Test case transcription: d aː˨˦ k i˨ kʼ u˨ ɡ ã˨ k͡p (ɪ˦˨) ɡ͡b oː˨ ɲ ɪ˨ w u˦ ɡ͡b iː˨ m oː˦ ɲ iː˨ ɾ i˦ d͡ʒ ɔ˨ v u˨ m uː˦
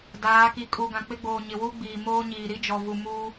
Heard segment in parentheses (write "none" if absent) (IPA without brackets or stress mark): ɪ˦